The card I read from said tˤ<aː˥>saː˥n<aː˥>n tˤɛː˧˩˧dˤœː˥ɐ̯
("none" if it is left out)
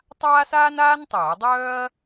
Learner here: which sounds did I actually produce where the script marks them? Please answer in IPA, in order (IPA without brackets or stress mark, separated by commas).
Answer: aː˥, aː˥